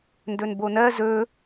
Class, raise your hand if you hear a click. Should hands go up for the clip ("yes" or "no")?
no